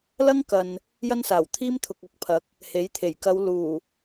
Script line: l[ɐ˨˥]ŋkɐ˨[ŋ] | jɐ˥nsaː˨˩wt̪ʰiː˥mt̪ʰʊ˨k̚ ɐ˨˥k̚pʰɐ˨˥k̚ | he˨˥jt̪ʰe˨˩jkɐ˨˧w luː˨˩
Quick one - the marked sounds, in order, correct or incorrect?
incorrect: ɐ˥, incorrect: n

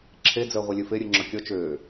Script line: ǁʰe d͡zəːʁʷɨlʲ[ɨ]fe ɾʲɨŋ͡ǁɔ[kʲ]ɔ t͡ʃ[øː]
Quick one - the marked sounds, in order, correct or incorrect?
correct, correct, correct

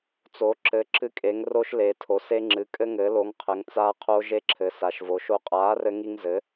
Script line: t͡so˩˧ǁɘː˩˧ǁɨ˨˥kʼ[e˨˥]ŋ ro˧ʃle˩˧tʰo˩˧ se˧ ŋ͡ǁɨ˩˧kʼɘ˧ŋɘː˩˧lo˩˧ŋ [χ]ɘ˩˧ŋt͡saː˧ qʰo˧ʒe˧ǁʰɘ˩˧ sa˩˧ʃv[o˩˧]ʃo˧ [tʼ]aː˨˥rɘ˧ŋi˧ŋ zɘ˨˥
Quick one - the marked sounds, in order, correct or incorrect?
incorrect: e˩˧, incorrect: qʰ, correct, incorrect: qʼ

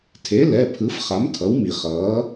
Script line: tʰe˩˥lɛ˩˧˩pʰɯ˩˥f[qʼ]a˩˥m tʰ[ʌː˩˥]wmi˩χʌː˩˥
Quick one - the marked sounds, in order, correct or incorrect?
incorrect: χ, incorrect: ʌ˩˥

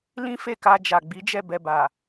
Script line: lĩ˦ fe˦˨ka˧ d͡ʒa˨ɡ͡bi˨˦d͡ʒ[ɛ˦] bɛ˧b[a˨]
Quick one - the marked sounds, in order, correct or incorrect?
incorrect: ɛ˦˨, correct

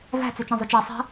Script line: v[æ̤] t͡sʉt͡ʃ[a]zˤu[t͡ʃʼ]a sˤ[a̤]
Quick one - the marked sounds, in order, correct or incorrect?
correct, incorrect: ã, incorrect: t͡ʃ, correct

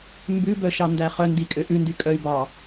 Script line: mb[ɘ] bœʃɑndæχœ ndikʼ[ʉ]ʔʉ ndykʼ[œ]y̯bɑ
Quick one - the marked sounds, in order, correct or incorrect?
incorrect: ʉ, incorrect: ø, correct

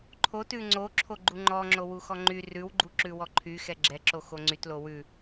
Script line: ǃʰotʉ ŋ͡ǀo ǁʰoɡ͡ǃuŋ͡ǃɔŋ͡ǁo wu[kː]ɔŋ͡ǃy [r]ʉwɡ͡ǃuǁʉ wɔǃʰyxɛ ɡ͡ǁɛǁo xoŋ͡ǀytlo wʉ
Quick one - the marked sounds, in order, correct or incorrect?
incorrect: x, correct

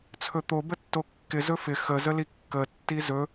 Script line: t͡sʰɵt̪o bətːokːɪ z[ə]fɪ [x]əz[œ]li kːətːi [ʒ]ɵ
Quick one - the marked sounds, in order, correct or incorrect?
incorrect: ɵ, correct, incorrect: ə, incorrect: z

